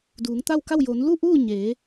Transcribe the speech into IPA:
d uː˩˧ ŋ t̪ a˥˨ w k a˥˨ w j o˩˧ n l u˥˨ ʔ uː˥˨ ɲ eː˩˧

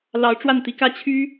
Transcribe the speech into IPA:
l ɑ˧˥ ʊ̯ ʈ͡ʂ w a˥˩ n t̪ i˧˥ k ä˥˩ t͡ɕʰ y˥

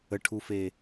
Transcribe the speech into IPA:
ə ʈʰ u f e

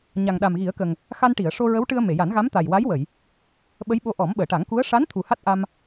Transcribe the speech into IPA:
ɲ a˨˩ ŋ ɗ a˨˩ m ɣ i˨˩˦ ə̯ k ə˨˩ ŋ | x a˧ n ʈ i˨˩˨ ə̯ ʂ o˧ ɹ ə˧˥ w ʈ ɨ˧ ə̯ m e˨˩˨ j a˨˩˦ n ɣ a˧˥ m t̪ a˨˩ j w a˧˥ j w ə˨˩˨ j | ɓ ə˧˥ j ɓ o˧ ʔ ɔ˨˩˦ m ɓ əː˨˩˨ ʈ a˨˩˦ ŋ k u˧˥ ə̯ ʂ a˧˥ n t̪ʰ u˨˩ h a˦˥ t̚ ʔ a˧ m

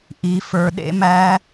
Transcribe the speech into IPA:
ʔ i˨ f ə˞˨ ɗ ḛ˦˥ m æ˦˥

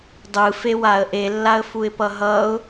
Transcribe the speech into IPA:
dˤ ɯ f e w a ə̯ ʔ e lː a ə̯ f u ɪ̯ p ʌ ɦ ʌ ʊ̯

